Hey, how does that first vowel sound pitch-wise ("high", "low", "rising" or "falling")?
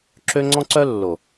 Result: high